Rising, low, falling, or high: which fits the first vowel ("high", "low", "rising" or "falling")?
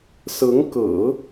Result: rising